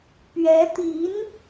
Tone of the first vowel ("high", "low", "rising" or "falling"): rising